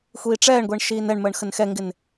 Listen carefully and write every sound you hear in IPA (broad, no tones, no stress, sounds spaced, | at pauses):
xʷ iː ʈ͡ʂ ɛː ɳ ɡʷ ɛ ɳ ʃ iː n ɛ ɳ m əː ɳ x ə n x ɛ ŋ ɡ ɪ n